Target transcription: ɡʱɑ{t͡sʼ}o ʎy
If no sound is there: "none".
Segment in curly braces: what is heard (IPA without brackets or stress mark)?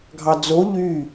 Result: d͡z